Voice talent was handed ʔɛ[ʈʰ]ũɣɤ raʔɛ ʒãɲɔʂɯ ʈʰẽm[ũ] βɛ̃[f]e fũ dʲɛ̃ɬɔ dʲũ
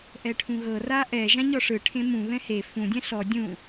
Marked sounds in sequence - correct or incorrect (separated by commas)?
correct, correct, incorrect